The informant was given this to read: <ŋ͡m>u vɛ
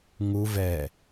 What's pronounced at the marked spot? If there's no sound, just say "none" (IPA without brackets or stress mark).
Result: ŋ